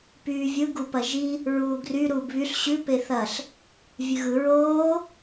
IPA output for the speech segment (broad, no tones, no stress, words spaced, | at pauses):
pyːvʲɯ ɡupɐʒi | ɹuːɡry ɾuːbβyɬ ɕʉ peθɐɬ | vʲʉɣɯ ɹoː